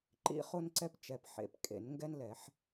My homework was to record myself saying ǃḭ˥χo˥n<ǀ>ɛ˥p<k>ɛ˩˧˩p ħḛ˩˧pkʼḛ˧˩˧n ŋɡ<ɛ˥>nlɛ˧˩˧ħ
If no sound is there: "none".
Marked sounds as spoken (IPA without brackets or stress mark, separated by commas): ǀ, t͡ʃ, ɛ˥